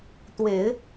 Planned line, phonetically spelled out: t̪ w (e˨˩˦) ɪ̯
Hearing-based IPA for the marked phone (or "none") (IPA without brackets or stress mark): e˨˩˦